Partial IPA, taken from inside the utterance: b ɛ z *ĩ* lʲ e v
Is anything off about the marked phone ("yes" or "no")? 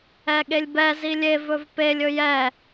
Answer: yes